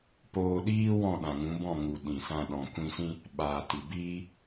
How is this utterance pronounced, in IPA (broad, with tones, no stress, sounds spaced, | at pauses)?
p oː˧ ɗ iː˦ w ɔ̃˦˨ ɗ ã˨ ŋ ũ˨˦ b ɔ̃˦˨ ŋ u˨ ɗ ĩ˨ s ã˧ ɗ ɔ̃˨ kʷ ĩ˧ s ĩ˦ | ɓ aː˨ t i˨ b iː˦